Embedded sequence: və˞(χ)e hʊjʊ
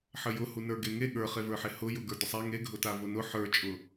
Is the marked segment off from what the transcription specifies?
yes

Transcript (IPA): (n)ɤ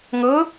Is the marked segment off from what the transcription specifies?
yes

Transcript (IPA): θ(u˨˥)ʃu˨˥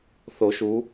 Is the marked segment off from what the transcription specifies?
yes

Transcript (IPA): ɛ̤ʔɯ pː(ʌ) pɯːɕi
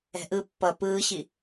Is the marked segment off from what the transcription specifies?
no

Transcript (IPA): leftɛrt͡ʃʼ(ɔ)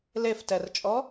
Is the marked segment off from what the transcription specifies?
no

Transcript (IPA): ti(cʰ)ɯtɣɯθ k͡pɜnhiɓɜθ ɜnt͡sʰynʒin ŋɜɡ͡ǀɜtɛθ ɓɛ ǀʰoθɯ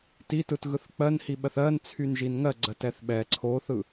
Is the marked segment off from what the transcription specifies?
yes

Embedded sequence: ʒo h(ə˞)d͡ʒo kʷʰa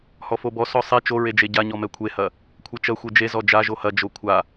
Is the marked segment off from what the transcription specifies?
yes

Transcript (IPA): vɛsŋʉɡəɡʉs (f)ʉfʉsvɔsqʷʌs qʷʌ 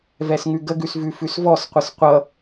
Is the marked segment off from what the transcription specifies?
yes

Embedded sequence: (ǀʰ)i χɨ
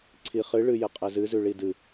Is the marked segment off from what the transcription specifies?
no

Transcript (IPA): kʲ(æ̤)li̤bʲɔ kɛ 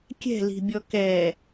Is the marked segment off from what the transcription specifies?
yes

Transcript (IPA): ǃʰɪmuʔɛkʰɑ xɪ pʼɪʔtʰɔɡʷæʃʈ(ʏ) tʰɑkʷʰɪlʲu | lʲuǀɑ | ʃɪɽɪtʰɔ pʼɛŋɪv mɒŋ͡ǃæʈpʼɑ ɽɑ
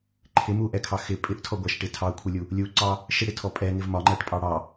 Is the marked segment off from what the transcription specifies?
yes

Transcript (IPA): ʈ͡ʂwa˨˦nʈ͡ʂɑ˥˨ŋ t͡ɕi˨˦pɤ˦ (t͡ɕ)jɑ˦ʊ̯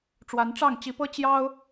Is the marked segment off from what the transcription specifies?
no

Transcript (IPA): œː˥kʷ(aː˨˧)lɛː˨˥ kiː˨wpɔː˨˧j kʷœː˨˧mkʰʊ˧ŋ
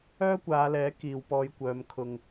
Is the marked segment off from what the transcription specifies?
no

